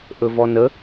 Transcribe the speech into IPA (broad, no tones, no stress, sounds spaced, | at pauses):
ʔ ɵ v ɔ n ə